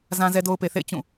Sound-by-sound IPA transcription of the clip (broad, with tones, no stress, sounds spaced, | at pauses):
z ã˦ z ɛ˦ d o˦ ʊ̯ p e˨ θ ḛ˦˨ ɪ̯ t͡ɕ ũ˦˨